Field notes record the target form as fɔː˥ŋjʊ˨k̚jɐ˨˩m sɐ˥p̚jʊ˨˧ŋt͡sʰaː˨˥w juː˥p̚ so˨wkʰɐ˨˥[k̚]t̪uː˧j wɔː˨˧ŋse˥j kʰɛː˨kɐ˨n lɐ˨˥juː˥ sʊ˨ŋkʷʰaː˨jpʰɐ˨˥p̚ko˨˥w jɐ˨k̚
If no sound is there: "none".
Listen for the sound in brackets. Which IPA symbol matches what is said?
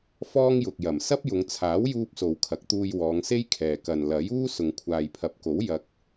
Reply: k̚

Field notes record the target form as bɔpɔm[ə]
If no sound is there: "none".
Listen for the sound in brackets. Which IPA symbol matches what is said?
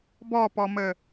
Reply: ə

